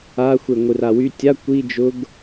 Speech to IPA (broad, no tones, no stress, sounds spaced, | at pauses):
a xʷ e ŋʷ ɨ r a w y tʲ a kʷ i d͡ʒ ʊ ɡ